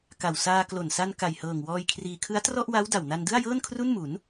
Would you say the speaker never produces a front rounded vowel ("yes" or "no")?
yes